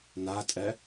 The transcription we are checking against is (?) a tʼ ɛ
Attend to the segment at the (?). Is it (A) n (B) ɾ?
A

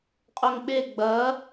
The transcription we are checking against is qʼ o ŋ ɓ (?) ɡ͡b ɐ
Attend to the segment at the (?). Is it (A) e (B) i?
A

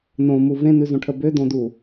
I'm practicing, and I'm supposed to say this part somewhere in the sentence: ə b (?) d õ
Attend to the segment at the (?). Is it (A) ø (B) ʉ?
A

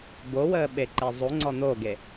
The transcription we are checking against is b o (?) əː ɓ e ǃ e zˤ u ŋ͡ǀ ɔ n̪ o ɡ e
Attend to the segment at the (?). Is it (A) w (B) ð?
A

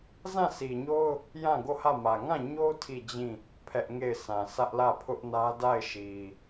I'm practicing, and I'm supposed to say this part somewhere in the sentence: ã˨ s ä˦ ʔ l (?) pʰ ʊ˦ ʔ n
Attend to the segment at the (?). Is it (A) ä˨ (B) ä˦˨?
B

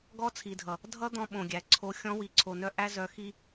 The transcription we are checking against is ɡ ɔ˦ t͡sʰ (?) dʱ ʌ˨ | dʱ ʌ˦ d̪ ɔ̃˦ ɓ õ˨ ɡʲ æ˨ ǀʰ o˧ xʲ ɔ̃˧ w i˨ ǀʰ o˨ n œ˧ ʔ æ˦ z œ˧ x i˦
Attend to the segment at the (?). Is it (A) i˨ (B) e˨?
A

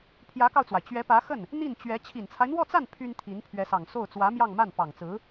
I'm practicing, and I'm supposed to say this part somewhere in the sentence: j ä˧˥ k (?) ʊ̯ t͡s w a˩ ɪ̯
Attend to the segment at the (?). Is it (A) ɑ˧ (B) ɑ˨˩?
A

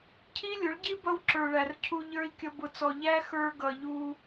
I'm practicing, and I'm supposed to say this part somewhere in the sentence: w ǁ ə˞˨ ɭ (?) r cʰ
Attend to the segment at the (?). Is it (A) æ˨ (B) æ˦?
A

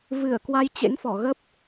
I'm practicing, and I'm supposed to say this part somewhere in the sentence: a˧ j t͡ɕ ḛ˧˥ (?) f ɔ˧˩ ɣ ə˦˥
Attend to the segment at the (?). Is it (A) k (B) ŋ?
B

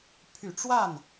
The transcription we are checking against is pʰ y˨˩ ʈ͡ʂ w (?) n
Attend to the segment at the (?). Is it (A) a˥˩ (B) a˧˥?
A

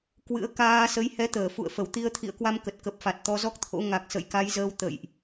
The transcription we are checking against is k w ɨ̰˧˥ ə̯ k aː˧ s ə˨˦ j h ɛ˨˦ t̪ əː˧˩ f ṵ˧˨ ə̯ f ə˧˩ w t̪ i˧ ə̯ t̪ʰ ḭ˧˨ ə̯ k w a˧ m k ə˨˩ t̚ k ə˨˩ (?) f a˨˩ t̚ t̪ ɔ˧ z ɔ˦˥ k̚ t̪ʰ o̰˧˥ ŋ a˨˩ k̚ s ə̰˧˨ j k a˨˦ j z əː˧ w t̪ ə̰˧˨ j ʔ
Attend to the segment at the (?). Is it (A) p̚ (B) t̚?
A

